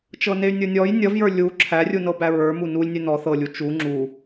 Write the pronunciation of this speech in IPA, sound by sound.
t͡ʃ ɤ n e y̯ nʲ ə˞ nʲ ɔ j nʲ ʌ v j ə˞ lʲ u ǁʰ æ rʲ u n ɤ b æ ɹ ə˞ m u n u lʲ nʲ e n ɔ θ ɤ lʲ u t͡ʃ u ŋ͡ǁ u

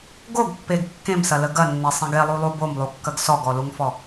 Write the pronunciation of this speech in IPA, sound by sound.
ɡ o ɡ pː e ɡ kː ẽ m s ɐ l ə ɡ ɐ nː e sˤ ẽ ɡ e lˠ u lˠ u b o m lˠ u kː ɐ ɡ s ɔ ɡ ɔ l u ŋ f ɔ

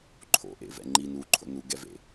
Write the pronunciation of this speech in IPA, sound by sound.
ǃʰ o̰ ʔ ḛ v ɛ̰ ŋ͡ǃ i n u ǃʰ o̰ n u ɡ ɛ v ḛ

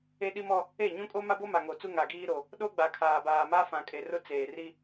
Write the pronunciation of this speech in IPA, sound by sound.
e˦ ɗ i˦ m ɔ˦ | e˦˨ ɲ ũ˦ kʼ o˦ m a˦ b o˦ m a˨ ŋ o˨ t͡s u˦ ŋ a˨ ɡ iː˦ ɾ o˨ | ɗ o˦ ɡ͡b a˨ kʰ aː˨ b aː˨ m a˦ f ã˨ kʼ e˨ r ʊ˦ t͡s eː˨ r i˦

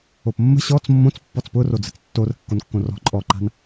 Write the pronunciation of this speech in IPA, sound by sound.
o p mː ə̤ ɕ ɔ t͡s mː õ t͡s pː ɔ t͡s p ʊ r o d͡z ə̤ t͡s tː o r ə̤ kː o n kː õ r ɔ̤ ǃʼ ɔ ǃ a̤ n

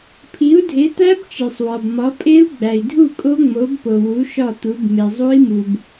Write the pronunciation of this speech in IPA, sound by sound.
pʰ i˨˥ u̯ dʱ e˨˥ t̪ æ˦˥ b t͡ʃ e˨ sˤ w ɒ˨ b m ɒ˨˥ pʼ e˦˥ u̯ ɡ͡b æ˨ i̯ dʱ u˥˨ kʼ o˦˥ ŋ͡m o˨˥ b p o˨ w u˨˥ ʃ ɒ˥˨ t̪ u˨˥ b m e˨ zˤ u˦˥ i̯ m u˨ b

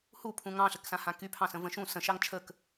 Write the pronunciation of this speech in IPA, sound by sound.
h u pʰ ũ ŋ ɑ̃ ɬ ə k s ã h ã k y pʰ ɑ̃ s ə̃ v ə̃ ʃ ũ s ə̃ ʃ ɑ ŋ t͡ʃʰ ə k

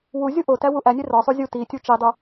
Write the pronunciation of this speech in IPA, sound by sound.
w u zʲ u ʔ o t æ w u ʔ æ nʲ e r ɒ sˤ u zʲ u t i tʲ u t͡ʃ i dˤ u

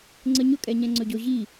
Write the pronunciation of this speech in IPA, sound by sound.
ŋ͡ǀ ə ɲ ʊ kʼ ɛ ɲ ɛ̃ ŋ͡ǀ ɵ ɟ ʊ ʑ i

